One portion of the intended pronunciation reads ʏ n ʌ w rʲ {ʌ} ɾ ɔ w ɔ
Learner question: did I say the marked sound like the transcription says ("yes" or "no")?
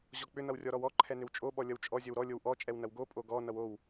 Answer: no